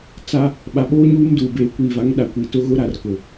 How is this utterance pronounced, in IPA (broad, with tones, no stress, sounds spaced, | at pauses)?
t͡s a˦ | ɓ a˨ ɓ oː˦ ɲ uː˦ m d uː˨ b eː˨ kʷ iː˨ v a˨˦ ŋ ɗ a˨ kʷ i˨ t ʊ˦ ɣ ʊ˦ ɾ a˨ r k ʊ˨